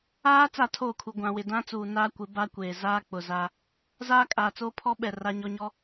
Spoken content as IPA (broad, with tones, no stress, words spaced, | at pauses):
aː˦ t͡sa˦˨tʰoː˦˨kʰu˨ ɡʷã˨wɪ˨ dã˦ t͡suː˨naː˦kʷɪ˨˦ ba˦kʷeː˨zaː˦ k͡pʊ˨za˦ | zaː˦kʼaː˨t͡soː˦pʰɔ˦ ɓɛ˨ ra˦ɲɔ˦ɲɔ˦